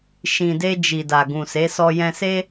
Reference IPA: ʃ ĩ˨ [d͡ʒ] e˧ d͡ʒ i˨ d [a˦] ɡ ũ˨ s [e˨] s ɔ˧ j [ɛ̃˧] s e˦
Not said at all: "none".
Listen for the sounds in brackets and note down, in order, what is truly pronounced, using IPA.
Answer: d, a˨, e˨˦, ɛ̃˧

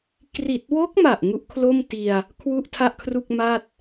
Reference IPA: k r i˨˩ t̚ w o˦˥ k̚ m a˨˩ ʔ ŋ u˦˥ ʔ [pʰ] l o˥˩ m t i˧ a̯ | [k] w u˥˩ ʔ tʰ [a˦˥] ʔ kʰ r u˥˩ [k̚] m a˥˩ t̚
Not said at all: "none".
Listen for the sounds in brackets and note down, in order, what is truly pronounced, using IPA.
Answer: kʰ, kʰ, a˥˩, k̚

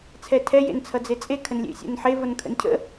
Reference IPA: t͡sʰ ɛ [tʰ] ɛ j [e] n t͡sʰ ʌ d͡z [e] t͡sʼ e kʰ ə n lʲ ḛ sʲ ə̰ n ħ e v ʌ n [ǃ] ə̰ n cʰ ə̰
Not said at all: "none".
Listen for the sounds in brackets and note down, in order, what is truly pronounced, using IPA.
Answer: tʰ, ḛ, e, kʰ

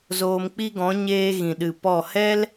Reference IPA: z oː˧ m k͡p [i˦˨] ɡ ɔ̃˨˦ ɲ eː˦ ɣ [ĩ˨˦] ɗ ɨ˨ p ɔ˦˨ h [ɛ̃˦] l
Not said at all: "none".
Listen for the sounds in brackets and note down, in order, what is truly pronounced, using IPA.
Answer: i˦, ĩ˨, ɛ˦

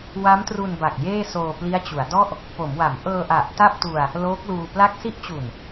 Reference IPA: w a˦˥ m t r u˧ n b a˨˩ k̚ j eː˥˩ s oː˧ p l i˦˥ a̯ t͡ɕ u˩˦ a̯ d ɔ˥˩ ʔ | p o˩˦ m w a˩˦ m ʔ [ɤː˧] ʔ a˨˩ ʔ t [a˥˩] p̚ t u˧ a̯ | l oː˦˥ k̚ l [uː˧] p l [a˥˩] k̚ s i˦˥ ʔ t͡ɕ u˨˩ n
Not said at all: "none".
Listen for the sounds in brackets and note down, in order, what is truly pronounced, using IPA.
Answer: ɤː˧, a˥˩, uː˧, a˥˩

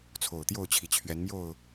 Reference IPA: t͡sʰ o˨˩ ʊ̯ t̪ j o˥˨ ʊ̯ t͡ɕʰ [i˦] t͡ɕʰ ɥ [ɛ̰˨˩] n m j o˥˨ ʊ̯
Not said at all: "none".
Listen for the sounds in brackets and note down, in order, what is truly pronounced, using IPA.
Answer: i˨˩, ɛ˨˦

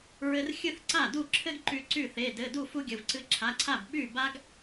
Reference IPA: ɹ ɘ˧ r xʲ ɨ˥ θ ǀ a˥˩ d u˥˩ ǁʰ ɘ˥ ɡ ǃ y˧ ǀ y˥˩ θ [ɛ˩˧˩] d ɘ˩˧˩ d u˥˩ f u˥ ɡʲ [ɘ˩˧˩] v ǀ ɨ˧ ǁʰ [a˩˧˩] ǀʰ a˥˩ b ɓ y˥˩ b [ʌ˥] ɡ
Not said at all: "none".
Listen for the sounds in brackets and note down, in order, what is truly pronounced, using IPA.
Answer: e˩˧˩, ɘ˩˧˩, a˩˧˩, a˥

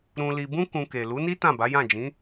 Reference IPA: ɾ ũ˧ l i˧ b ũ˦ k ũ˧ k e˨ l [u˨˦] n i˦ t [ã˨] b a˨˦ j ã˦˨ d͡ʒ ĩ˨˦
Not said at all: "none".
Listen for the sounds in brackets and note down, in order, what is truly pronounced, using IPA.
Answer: u˨˦, ã˦˨

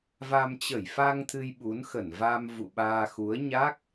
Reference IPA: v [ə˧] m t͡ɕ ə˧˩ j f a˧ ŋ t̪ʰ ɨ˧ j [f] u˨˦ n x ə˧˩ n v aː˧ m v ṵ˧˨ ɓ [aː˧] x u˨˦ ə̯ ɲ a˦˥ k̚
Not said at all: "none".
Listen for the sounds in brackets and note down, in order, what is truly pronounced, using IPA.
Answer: a˧, ɓ, aː˧

